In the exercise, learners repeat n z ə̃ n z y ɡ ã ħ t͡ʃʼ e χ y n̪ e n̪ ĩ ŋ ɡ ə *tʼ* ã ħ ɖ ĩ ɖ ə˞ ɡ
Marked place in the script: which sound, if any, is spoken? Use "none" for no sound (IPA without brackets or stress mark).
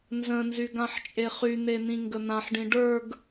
n̪